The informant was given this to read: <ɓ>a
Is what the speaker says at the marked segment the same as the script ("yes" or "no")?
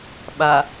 yes